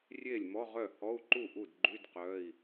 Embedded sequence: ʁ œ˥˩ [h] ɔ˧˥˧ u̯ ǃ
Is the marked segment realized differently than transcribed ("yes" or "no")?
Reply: no